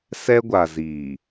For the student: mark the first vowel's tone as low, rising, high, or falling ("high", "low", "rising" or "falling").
high